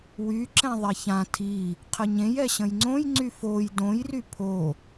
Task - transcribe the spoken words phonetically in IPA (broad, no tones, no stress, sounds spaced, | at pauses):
w y ǁ ɛ̃ ðˤ ɛ ç ã tʰ i | qʰ ə ɲ ẽ j ɛ ɕ ə̃ j ŋ͡ǀ õ j ŋ͡ǀ y f o j d õ j r y pʰ o